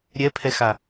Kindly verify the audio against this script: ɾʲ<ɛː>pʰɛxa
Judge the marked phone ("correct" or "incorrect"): incorrect